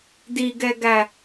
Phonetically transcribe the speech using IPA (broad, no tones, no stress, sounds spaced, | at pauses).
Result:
d i ɡ ɛ ɡ æ